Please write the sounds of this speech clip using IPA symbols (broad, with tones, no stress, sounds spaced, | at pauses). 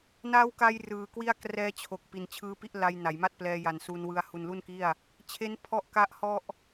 n a˦˥ w k a˧ j r ɯː˨˩ k w i˥˩ a̯ k r ɛː˦˥ t͡ɕʰ o˨˩ k̚ p i˩˦ n t͡ɕʰ ɯː˦˥ p i˥˩ ʔ l a˧ j n a˩˦ j m a˥˩ t̚ p l ɛː˧ j a˨˩ n s u˧ n w ɯ˧ a̯ h u˨˩ n l u˥˩ n k i˥˩ a̯ | t͡ɕʰ e˦˥ n pʰ ɔ˦˥ ʔ k a˦˥ ʔ h ɔ˥˩ ʔ